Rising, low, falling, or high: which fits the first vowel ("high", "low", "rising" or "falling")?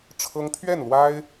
high